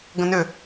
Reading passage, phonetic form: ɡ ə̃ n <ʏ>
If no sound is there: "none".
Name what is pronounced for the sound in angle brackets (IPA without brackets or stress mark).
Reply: ʏ